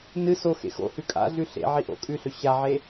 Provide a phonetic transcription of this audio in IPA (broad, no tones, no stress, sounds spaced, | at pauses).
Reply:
n ɨ s o x ḛ x o̰ h ʉ kʼ a̰ ɮ ʉ ɬ ḛ ʕ i ʔ o̰ kʼ ʉ ɬ ɵ ɕ a ʕ e